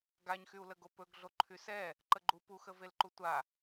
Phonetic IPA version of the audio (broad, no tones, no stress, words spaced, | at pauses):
ɡaɲxyu̯ ləɡopɵɡ ɮoǃʰysɛ | ǃəɡ͡ǃu puxəvel ǃutʷa